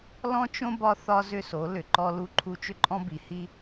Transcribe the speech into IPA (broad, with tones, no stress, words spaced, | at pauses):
lɔ̃˦t͡ʃõ˦ bɒ˦θɒ˦ zʏ˦so˨˦ lʏ˨ ǃɔ˦lu˦ǃʰu˦ t͡ʃʏ˦ǃʼɔ̃˦bi˨hi˦